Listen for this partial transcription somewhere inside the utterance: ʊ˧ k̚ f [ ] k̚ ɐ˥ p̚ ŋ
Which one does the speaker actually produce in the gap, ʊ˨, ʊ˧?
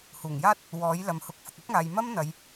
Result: ʊ˨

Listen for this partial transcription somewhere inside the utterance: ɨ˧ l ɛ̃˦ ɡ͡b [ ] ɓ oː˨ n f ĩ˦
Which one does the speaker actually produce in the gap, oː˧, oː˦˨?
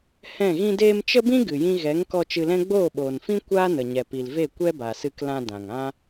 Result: oː˦˨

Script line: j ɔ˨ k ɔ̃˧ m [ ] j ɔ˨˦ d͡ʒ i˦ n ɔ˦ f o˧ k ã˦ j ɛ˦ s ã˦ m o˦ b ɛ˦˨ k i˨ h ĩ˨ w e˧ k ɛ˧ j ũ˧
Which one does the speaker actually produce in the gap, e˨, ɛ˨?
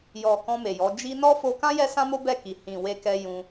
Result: e˨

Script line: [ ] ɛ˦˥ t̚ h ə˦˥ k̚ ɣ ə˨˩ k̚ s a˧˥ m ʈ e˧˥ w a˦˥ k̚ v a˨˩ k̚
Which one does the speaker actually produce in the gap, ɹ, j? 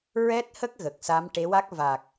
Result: ɹ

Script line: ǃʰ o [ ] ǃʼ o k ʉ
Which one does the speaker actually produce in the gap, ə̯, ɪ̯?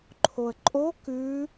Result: ə̯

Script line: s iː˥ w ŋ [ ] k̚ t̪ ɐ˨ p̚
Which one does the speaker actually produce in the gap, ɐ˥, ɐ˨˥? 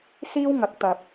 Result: ɐ˨˥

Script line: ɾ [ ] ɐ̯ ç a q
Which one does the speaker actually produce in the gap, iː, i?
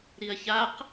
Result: i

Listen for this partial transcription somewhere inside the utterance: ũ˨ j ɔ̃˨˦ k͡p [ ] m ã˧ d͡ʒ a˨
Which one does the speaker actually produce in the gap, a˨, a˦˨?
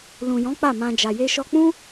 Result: a˦˨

